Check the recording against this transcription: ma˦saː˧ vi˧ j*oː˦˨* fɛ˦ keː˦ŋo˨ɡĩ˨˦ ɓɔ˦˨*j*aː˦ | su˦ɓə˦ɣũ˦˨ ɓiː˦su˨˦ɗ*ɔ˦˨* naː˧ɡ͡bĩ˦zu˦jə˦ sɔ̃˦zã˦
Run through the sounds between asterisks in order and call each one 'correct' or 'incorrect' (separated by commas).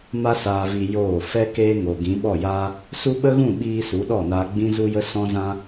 correct, correct, correct